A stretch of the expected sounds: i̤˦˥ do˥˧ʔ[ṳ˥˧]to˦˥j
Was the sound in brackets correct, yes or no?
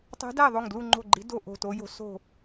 no